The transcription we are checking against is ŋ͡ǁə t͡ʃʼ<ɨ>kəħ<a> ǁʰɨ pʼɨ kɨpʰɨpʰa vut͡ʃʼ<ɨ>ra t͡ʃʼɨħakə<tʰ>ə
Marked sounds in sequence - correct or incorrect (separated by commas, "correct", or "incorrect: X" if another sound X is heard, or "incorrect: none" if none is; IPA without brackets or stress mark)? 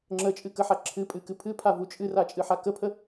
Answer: correct, correct, correct, incorrect: pʰ